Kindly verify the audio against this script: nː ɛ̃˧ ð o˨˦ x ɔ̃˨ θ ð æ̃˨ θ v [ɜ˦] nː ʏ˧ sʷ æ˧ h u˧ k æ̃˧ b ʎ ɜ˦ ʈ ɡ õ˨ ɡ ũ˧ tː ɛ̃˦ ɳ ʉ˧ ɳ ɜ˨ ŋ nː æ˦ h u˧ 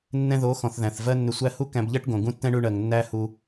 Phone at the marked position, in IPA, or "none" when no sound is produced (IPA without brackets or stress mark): ɜ˦